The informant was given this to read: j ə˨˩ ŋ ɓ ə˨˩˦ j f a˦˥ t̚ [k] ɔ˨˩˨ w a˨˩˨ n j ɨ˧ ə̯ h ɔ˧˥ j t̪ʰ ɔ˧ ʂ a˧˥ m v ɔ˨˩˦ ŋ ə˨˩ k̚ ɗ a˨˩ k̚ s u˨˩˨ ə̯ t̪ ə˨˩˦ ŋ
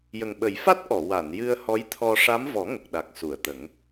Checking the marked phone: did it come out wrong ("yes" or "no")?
yes